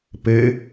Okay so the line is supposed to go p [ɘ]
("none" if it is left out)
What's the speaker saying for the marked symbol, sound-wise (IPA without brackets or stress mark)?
ɘ